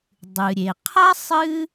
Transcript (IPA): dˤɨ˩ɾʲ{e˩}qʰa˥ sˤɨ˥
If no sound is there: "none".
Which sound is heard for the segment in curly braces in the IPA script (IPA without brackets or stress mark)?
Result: e˩